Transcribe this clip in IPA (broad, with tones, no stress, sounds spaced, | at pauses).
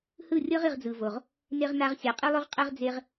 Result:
h ɯ˦˨ rʲ ɤ˦ ʁ i˧ ʁ d͡z ɯ˨ v o˨ ʁ | n e˧ ʁ n a˧ ʁ sʲ a˨ qʼ i˦ lˠ u˦ ʁ qʼ ɛ˦ ʁ d͡z e˦ ʁ